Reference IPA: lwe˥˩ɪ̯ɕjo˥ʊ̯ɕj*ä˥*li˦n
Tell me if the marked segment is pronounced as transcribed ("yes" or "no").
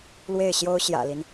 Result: no